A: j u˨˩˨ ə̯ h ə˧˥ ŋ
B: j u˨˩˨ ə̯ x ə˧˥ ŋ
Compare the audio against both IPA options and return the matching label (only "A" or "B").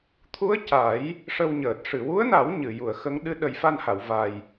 B